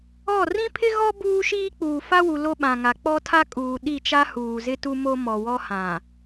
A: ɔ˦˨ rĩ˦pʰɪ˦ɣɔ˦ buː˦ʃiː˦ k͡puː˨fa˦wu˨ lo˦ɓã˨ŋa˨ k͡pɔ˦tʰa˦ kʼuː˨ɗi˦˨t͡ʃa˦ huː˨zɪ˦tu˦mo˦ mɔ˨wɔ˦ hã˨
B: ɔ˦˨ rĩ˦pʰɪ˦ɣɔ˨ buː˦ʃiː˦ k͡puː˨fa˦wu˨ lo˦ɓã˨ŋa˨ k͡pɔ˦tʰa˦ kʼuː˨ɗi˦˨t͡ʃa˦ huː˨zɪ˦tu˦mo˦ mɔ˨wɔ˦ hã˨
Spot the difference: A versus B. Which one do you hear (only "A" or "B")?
A